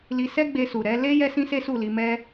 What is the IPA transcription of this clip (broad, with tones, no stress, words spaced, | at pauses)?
li˧ sɛ˦ɡ͡be˧su˨ ɾɛ˨˦ le˦ jɛ˦sĩ˦se˦su˦˨ li˧mɛ˦